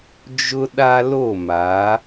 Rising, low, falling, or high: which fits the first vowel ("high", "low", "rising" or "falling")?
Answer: high